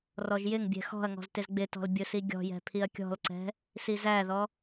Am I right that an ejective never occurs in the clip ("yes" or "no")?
yes